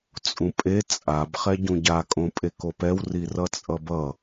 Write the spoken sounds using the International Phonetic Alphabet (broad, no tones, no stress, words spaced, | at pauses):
t͡sʼũpʼe t͡sʼab χɛɟũɟa kʼõpʼekopɛw rirʌt͡sʼʌbʌ